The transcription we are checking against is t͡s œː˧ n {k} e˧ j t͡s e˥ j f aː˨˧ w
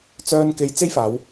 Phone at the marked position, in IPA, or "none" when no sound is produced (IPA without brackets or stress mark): k